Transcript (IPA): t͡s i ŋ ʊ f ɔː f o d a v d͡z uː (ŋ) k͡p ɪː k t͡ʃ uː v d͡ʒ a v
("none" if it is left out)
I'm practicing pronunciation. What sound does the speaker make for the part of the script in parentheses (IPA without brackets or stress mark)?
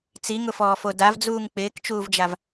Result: ŋ